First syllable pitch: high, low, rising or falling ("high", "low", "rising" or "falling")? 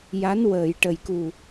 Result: rising